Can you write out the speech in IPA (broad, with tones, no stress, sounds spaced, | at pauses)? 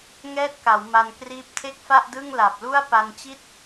ŋ ɛː˦˥ t̚ k a˩˦ w m a˧ n k r iː˦˥ p̚ tʰ e˥˩ k̚ f a˥˩ ʔ d ɯ˥˩ ŋ l a˨˩ p̚ l u˥˩ a̯ p a˧ n t͡ɕ i˥˩ t̚